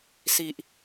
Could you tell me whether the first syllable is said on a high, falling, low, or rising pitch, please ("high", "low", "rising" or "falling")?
low